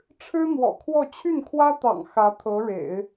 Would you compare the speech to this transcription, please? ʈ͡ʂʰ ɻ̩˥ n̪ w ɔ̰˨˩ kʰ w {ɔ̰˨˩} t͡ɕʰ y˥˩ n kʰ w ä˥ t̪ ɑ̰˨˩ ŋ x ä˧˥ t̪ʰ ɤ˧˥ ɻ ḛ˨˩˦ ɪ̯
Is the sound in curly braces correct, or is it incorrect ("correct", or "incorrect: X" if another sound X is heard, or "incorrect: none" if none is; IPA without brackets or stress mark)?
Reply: incorrect: ɔ˥˧